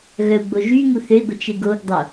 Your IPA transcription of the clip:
ɣ œ u̯ ɡ͡b o ʒ y ŋ u θ ø i̯ ɡʷ ə t͡ʃ e ɡ o ɡ dˤ o

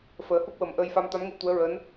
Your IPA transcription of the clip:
f əː˨˩˦ h u˦˥ k̚ w ə˨˩ m ʔ əː˧ j f a˧ m t̪ a˧˥ m ŋ u˧˥ t̪ u˧˥ ə̯ ɹ əː˧˥ n

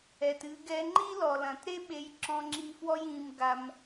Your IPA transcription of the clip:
ɛ˩ t ɨ˧ ɡ ɛ˧ ŋ͡ǃ i˥ l ɔ˩ l ɐ̃˩ t ɾ e˥ ɓ e˧ j ǁ ɔ̃˧ ŋ͡ǁ i˧ f w ɔ˥ j ĩ˧ m ɡ a˧ m

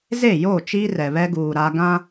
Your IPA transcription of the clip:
z e˦˨ j oː˦˨ t͡ʃ iː˦ r ɛ˨ β ɛ˦ ɡ uː˨ ɾ a˦ ɡ ã˦

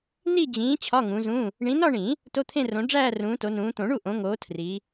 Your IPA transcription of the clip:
n i˥˧ d͡ʑ ĩː˨˦ t͡ɕʰ ɒ˧˥˧ ŋ ũ˨˦ z ũ˧˥˧ | ɳ ĩ˨˦ n ɒ˥˧ ɳ ĩ˨˩˦ | t o˧˥˧ t̪ʰ ẽ˥˧ r õ˨˦ ɖ͡ʐ æː˥˧ r ũː˨˦ t o˨˦ n ũː˨˦ t̪ õ˨˩˦ ɳ u˥˩ ʔ õ˨˦ ŋ oː˨˦ tʰ r i˨˦

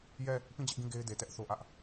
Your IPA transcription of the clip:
j ɛ˦˨ | p ĩ˦˨ d͡ʑ ɪ˦ ʔ ɡ ĩ˦˨ ɡ e˦ ɪ̯ d e˨ t ɛ˦ ʔ θ o˦ ʔ ä˦ ʔ

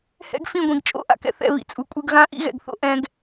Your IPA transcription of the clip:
h ɛ̰˦ ɡ f ĩ˦˨ ɡʷ ĩ˨ ɡ t͡ʃʼ o̰˦˨ ʔ a̰˧ k ɛ̰˧ θ ɛ̰˦˨ β ḭ˨ t͡sʼ u˨ kʷʼ ɯ˧ ɡ ɣ ã˦ ʔ ḭ˦ ɣ ɛ̰˨ ɡ θ o̰˦ ʔ ɛ̃˧ ɡ

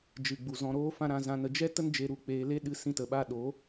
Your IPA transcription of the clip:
d͡ʒ ɨ˨ ɡ͡b u˨ z ɔ̃˨ ɾ oː˧ f ã˧ ɾ ã˧ z ã˧ n ə˧ d͡ʒ ɛ˦ t ə˦ n d͡ʒ e˧ ɾ u˧ k͡p eː˧ l e˦ ɗ ɨ˦ s ĩ˦ t ə˧ ɓ a˦ ɗ o˨˦

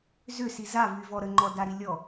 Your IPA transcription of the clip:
z ʏ s i z a v y v ɔ ɾ ə ŋ͡ǃ ɔ d a ɾ i lʲ ɔ

